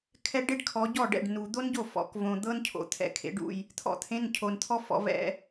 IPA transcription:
kʰ ɛ˥ ɖ e˥ ɖ kʰ ɔ˨˦ ɟ ɔ˥˩ ɖ ɛ̰˥˩ ɖ n u˨ d̪ o˥ n ɟ o˥˩ f ɔ̰˨˦ k v õ˨ d̪ ɤ˥ n cʰ o̰˨ t̪ʰ ɛ̰˧˥˧ kʰ ḛ˨˦ ɖ ṵ˥˩ j | t̪ʰ ɔ̰˥ t̪ʰ ẽ˧˥˧ n cʰ o˨ n t̪ʰ ɔ˥ f ɔ̰˨˦ v ɛ̰˧˥˧

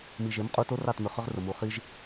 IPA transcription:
m i˨ ʒ e˨˦ m qʼ u˧ t o˦ r ɑ˦˨ t m ʏ˨ χ ʏ˦ ʁ r ʊ˨ m u˨ χ i˧ ʒ

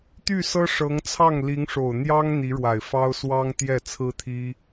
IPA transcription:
t̪ y˥˩ s ɤ˥ ʂ ɤ˧˥ ŋ t͡sʰ ɑ˥˩ ŋ l i˧˥ ŋ ʂ o˨˩ ʊ̯ n̪ j ɑ˥ ŋ n̪ i˧˥ ɻ w a˨˩ ɪ̯ f ɑ˥ ʊ̯ s w ɑ˥ ŋ t̪ j ɛ˥˩ t͡sʰ ɹ̩˥ t̪ʰ i˥

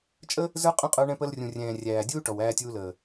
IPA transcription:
t͡ʃʼ ə˦ | z ə˞˦ qʼ ə̃˦ qʼ ə˞˧ ɳ ɛ̃˧ p ə˧ l rʲ ũ˨ rʲ ɛ̃ː˨ rʲ æː˨ dʲ uː˦ ʈ ɔ˨ w æː˧ tʲ uː˧ l əː˨

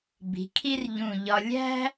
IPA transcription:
b i̤˩˧ kʰ i˥ r ʎ ũ˧˩ ʎ ɒ˧ lʲ æ̤˥

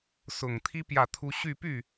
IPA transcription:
s ʊ˨˩ ŋ t̪ʰ i˥ p j ä˥˩ t̪ʰ u˥ ɕ y˥˧ p y˥˩

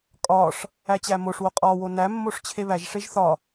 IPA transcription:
kʼ ɒ ʂ | æ t͡ɕ æ m o ʂ w o qʼ ɒ w o n æ mː o ʂ t͡ɕʰ e β æ ʒ ʂ e ʒ θ ɒ

